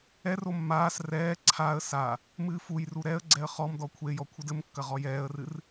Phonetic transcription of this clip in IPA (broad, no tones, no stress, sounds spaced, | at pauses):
ɛ r o mː aː s r ɛː ǀʰ a ə̯ s a | m ɨː f u j r u ɾ ɛ ə̯ ɡ͡ǀ ɛ ə̯ χ ɔ m d ɔ kʷʰ e j ɔ kʷʰ ɨ d ɘ m kː ɐ ʁ ɔ j ɛː ə̯ r ɨ r